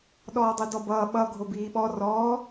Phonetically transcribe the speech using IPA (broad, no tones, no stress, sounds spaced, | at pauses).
ɗ ɔː dˤ i d ɔ b ʌː ɓ ʌ ɡʱ o b iː ɓ ɔ r ɔː